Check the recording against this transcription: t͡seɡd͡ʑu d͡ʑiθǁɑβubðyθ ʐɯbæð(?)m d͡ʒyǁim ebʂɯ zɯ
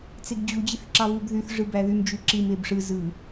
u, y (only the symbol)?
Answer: y